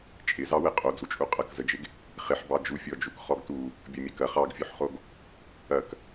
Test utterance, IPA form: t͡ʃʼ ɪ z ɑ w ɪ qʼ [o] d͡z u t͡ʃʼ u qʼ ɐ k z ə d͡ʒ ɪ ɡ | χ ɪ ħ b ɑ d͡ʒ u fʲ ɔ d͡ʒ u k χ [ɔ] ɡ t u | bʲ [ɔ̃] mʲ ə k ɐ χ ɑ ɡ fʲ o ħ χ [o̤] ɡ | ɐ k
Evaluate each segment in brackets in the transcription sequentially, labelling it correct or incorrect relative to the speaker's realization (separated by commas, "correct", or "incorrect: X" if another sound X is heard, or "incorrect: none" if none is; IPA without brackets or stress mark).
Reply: correct, correct, incorrect: ɔ, incorrect: o